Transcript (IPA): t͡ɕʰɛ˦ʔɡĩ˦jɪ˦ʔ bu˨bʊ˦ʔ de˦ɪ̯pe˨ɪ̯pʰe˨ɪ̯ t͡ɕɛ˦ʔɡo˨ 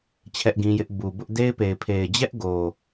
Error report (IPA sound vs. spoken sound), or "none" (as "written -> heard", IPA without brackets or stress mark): t͡ɕ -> d͡ʑ